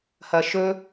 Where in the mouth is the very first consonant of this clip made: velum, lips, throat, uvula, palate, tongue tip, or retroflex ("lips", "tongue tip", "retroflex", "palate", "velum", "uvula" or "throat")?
throat